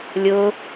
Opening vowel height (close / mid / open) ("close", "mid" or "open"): close